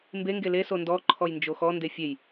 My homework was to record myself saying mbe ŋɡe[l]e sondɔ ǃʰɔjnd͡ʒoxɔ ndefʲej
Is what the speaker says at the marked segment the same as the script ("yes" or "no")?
yes